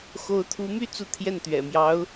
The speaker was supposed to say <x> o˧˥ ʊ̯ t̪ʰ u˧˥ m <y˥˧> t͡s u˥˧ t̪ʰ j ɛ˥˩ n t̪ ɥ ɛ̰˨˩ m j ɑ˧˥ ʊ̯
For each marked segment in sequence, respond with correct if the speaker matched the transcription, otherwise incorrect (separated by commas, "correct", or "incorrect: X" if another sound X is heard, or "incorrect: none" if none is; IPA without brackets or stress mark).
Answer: correct, correct